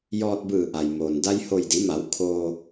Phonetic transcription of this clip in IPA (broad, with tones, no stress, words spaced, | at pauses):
jɔː˧t̚bɯː˧˩ʔa˩jmoː˩n da˧jho˧˩jdi˩˧ma˩˧w kʰoː˧